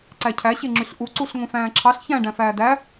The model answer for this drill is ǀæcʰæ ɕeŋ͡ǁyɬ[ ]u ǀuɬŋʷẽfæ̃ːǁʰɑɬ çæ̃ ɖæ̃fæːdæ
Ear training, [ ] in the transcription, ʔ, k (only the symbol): ʔ